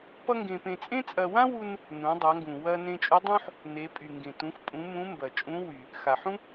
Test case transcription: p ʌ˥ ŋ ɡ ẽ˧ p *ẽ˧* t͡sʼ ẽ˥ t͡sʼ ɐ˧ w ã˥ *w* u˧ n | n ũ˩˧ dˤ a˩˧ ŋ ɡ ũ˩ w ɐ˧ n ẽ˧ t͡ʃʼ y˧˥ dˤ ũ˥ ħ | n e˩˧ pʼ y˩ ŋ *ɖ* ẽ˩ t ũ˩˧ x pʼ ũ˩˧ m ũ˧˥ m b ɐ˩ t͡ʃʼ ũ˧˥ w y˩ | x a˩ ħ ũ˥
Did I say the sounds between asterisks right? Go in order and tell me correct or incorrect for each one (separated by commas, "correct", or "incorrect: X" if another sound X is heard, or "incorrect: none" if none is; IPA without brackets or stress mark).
correct, correct, incorrect: ɡ